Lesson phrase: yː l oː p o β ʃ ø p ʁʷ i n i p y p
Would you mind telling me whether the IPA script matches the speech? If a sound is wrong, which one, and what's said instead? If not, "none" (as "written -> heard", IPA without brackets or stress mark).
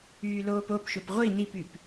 β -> p